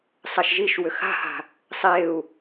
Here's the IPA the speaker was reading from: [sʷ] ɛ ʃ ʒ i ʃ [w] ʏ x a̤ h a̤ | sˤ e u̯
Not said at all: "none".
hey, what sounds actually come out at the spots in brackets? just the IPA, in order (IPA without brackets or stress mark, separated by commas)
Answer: sˤ, w